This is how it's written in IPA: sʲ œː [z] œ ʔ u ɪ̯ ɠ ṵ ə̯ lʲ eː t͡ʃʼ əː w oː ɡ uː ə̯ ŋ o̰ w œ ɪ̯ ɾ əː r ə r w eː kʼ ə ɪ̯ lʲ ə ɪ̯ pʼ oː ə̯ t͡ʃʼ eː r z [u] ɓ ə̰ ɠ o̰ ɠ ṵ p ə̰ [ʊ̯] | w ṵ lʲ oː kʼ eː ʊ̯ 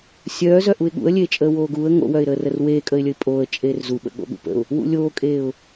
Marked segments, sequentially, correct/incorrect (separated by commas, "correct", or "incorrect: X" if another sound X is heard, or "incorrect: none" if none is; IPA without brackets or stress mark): correct, correct, correct